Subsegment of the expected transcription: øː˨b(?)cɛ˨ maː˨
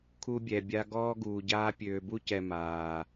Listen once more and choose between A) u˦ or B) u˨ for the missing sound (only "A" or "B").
A